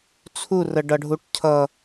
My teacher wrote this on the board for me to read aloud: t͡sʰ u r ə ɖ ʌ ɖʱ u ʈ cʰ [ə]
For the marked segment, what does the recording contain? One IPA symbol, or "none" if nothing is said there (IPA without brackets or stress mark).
ʌ